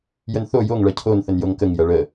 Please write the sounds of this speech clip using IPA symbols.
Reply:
j ə n θ o j o ŋ ɭ ɐ cʰ o n θ ə n j o ŋ k ə ŋ j ɐ ɭ ə

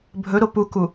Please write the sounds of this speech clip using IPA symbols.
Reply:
bʱ ɵ ɾ o p u k u

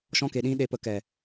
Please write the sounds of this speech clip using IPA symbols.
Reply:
ʃ ɔ̃˧ k e˨ ɗ ĩ˧ ɗ e˨ p ə˨ k ɛ˨

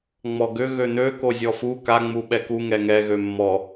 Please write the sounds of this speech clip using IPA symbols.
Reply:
ŋ͡m ɔ ɡ ʏ ɣ ø n̪ ø k o zʲ ɔ f u k a ŋ͡m u ɓ ɛ k u ŋ ɛ ŋ ɛ ɣ ø mː ɔ

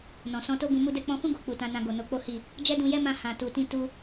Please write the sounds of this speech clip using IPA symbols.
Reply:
n ɔ̃˨ s ɔ̃˧ t o˦ ɡ ũ˧ m u˧ d ɛ˧ k͡p ɔ̃˧ f ũ˦ ɡ o˧ k͡p u˨ t ã˧ n ã˧ ɡ o˨ n o˧ k͡p o˦ h i˦˨ | d͡ʒ ɛ˦ d ũ˧ j ɛ˦ m ã˧ h ã˨ t u˨ t ĩ˧ t u˧

